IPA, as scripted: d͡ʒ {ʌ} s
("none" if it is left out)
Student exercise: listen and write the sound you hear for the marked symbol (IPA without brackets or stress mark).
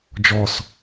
ɔ